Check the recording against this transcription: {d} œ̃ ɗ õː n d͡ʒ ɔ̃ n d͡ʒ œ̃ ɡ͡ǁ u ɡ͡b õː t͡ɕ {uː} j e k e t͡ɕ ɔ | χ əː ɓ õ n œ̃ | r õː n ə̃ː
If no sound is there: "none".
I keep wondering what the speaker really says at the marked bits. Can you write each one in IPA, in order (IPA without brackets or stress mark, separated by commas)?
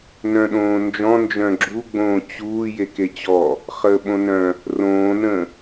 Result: n, uː